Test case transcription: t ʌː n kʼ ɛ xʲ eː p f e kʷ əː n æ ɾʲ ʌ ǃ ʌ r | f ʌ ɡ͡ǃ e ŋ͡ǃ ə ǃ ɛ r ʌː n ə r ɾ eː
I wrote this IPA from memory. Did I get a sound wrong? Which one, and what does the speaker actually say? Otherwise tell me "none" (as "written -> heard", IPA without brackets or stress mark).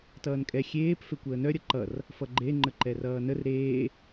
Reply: æ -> œ